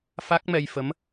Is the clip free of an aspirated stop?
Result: yes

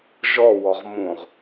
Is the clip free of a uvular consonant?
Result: no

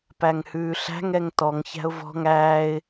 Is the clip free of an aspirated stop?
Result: yes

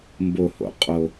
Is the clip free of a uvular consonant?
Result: no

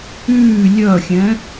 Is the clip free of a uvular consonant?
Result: yes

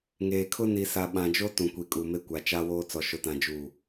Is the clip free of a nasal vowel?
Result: no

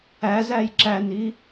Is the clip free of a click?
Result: no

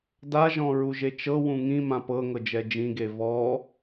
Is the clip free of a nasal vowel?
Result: no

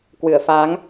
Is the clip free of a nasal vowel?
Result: yes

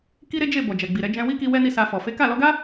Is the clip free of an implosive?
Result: yes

